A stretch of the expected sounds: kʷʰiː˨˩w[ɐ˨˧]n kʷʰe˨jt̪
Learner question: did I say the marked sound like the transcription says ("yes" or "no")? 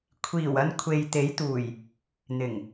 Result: no